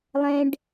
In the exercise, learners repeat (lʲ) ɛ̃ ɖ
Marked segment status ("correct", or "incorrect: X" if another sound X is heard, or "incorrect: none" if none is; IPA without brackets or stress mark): incorrect: lˠ